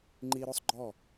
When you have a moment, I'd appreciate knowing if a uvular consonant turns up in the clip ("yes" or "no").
no